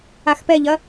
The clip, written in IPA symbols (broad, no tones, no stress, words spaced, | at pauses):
axpɛʎɐ